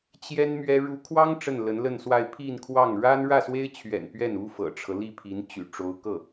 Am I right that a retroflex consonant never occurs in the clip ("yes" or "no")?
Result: no